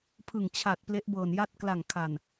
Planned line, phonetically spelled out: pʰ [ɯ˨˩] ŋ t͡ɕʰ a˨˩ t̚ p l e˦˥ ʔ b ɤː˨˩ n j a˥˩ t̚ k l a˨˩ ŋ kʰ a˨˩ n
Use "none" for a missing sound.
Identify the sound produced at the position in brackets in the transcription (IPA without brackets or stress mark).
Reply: ɯ˨˩